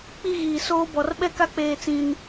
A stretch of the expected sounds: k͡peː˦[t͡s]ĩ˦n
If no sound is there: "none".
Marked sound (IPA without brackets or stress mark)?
t͡s